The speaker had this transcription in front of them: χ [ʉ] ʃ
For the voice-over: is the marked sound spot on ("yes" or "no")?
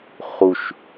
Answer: no